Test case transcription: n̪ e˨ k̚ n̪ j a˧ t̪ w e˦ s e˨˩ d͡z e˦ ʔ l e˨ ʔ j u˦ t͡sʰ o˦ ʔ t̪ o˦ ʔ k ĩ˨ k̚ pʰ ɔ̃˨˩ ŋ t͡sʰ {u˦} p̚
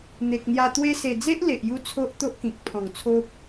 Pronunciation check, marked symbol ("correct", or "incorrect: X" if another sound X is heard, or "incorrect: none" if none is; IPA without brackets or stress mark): incorrect: o˦